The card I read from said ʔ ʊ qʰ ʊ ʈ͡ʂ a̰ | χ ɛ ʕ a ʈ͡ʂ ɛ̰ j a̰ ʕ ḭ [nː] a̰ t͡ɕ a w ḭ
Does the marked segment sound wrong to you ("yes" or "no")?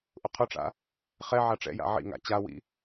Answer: yes